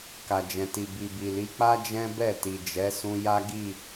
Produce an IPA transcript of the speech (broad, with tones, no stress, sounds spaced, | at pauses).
k a˨ d͡ʒ ɛ̃˨ t i˨ b i˨ b i˨ l i˨˦ k͡p a˦ d͡ʒ ɛ̃˦ b ɛ˦˨ t i˨ d͡ʒ ɛ˨˦ s ũ˧ j a˦ ɡ i˦˨